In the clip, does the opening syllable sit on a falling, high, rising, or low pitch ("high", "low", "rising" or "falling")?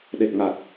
low